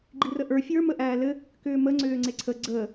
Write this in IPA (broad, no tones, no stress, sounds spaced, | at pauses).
ɡ͡ǃ i r ə ʔ ə˞ fʲ ə˞ m ə ʔ æː l ɘ | k ʏː m ə ŋ͡ǀ ʏː ŋ͡ǀ e ǀʰ ə ɡ͡ǀ ə